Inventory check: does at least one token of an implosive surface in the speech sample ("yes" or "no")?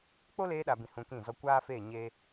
yes